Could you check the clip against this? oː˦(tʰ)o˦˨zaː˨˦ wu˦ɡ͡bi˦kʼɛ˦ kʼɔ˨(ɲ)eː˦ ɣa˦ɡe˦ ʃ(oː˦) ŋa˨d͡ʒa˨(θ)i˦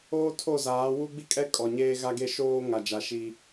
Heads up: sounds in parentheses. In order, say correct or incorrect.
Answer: correct, correct, correct, incorrect

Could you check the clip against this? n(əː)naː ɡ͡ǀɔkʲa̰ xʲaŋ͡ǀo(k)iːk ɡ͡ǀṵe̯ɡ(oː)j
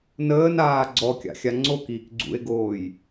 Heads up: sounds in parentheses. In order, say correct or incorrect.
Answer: correct, correct, correct

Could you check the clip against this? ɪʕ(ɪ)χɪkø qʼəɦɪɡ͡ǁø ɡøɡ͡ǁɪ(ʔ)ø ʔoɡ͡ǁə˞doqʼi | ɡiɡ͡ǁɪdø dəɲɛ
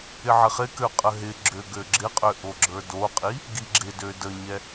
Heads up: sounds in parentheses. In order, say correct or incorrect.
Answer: correct, incorrect

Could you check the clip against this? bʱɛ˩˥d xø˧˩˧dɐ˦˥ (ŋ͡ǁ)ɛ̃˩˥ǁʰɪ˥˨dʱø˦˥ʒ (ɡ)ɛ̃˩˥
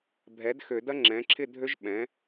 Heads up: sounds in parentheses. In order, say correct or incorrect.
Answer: correct, incorrect

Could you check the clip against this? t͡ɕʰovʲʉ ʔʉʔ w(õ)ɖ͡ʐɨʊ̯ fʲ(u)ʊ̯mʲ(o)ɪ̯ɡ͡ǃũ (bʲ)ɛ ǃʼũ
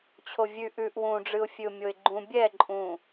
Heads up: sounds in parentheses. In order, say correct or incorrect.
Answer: incorrect, incorrect, correct, correct

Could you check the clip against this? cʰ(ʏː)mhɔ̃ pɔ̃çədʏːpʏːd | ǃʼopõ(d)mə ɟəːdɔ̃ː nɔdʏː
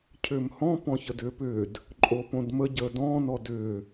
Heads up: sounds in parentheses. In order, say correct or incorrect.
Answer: correct, correct

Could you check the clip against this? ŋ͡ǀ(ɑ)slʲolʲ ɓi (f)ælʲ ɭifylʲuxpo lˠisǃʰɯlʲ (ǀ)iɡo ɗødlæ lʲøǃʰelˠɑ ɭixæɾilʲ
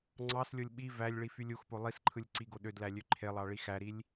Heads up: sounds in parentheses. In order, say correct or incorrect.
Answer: correct, incorrect, correct

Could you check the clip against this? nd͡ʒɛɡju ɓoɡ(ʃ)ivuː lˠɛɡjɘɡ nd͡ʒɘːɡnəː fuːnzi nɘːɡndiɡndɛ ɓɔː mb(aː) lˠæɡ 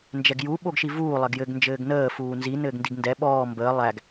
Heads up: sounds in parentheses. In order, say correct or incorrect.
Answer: correct, incorrect

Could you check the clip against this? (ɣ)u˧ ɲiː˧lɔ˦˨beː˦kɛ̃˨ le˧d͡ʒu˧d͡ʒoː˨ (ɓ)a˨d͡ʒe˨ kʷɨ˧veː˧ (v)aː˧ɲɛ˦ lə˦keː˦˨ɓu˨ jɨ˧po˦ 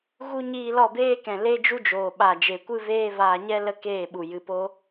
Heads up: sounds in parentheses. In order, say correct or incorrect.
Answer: correct, correct, correct

